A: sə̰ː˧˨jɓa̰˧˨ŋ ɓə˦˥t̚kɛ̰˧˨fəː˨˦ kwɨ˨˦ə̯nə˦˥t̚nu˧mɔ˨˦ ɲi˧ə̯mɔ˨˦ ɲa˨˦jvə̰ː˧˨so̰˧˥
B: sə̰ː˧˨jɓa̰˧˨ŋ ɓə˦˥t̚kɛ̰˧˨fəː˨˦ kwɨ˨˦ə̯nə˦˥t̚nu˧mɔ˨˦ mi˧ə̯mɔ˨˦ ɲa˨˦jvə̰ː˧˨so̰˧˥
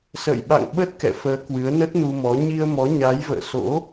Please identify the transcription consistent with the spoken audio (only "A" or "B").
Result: A